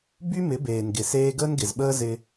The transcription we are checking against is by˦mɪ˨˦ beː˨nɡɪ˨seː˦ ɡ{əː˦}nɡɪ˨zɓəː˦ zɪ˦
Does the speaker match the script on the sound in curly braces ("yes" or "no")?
yes